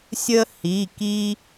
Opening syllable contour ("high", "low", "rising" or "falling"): high